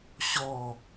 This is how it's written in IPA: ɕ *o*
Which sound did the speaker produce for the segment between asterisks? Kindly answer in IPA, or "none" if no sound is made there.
ɔ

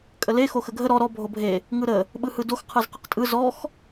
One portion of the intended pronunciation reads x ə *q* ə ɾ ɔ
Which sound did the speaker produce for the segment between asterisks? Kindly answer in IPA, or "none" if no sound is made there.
ɡʱ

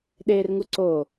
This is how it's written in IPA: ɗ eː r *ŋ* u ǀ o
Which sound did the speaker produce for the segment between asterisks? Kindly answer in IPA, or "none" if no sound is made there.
ŋ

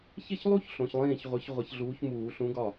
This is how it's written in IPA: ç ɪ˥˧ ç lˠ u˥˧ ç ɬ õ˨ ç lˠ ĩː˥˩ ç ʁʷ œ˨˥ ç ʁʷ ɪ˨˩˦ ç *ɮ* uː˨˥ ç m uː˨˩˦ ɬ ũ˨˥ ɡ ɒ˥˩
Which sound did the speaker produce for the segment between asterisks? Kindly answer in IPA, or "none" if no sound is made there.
ɮ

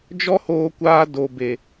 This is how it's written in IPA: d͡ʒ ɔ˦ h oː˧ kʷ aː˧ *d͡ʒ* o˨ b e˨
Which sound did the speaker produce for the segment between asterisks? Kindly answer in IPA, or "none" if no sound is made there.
d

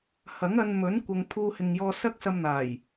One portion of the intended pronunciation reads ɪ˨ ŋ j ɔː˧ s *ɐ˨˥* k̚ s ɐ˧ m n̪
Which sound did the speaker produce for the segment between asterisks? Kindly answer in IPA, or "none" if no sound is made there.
ɐ˥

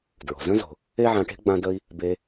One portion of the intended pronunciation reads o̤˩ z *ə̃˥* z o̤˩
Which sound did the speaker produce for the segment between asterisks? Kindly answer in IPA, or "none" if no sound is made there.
ə̃˥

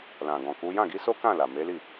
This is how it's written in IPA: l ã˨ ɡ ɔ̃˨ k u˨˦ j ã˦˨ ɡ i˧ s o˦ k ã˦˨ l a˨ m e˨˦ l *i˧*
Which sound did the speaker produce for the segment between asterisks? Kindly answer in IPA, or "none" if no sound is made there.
i˦˨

